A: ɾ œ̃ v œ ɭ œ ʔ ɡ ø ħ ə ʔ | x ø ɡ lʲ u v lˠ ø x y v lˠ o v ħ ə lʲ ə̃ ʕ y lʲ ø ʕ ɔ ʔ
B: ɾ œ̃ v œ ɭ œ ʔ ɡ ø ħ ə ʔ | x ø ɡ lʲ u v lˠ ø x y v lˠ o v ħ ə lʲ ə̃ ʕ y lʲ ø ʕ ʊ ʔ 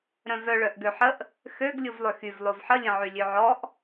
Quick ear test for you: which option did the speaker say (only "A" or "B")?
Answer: A